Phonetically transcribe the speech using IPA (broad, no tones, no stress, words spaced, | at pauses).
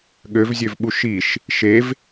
ɠøvzʲøvɓu ʃiʃ | ʃev